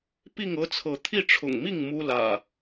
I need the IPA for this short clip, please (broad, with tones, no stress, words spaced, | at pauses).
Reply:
pi˥˨ŋɤ˦t͡sʰɤ˨˦ t̪ʰi˥˨ ʈ͡ʂʰʊ̰˨˩ŋmi˥˨ŋ mu˦lä̰˨˩